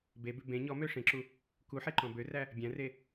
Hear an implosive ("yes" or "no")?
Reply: no